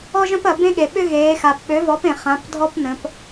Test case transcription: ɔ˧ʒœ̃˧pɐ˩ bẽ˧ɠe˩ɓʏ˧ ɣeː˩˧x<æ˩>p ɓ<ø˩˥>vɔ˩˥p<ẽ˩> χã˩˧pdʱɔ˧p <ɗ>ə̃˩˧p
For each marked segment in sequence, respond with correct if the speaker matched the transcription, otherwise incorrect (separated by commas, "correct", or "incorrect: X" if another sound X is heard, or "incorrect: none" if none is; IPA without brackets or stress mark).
incorrect: a˩, correct, correct, incorrect: n